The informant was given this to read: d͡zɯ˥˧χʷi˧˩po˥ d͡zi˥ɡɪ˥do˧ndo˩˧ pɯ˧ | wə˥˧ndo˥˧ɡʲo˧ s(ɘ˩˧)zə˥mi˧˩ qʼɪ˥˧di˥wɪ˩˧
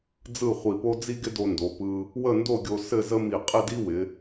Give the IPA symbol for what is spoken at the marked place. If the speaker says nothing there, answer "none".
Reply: ɘ˥˧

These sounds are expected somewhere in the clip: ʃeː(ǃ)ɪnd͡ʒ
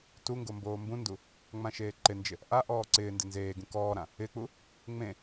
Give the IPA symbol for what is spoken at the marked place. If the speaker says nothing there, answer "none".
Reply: ǃ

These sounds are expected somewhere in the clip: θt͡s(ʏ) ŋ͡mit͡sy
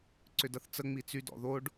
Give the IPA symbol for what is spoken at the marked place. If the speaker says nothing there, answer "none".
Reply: ə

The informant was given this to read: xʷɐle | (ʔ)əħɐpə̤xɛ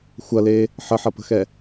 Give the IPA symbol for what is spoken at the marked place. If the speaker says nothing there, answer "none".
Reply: ħ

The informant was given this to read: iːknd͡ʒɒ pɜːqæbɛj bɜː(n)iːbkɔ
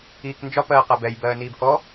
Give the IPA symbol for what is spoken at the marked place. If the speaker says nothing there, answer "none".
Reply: n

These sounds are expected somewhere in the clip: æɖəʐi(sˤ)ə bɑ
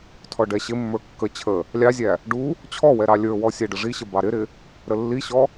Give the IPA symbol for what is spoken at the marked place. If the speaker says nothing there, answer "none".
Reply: ɕ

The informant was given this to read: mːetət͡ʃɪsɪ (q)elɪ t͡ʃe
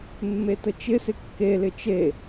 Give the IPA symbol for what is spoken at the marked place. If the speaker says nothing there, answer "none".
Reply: kː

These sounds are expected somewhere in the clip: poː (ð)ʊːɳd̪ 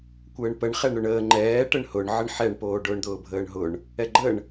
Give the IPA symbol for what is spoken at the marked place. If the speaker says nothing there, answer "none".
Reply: ɖ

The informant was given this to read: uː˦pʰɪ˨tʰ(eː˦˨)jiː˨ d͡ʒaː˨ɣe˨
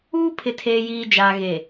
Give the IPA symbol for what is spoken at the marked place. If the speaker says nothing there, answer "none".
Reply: eː˨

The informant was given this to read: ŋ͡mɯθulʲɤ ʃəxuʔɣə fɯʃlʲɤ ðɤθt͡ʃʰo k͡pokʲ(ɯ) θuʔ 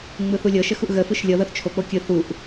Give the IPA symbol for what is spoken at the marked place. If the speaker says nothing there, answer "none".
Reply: ɯ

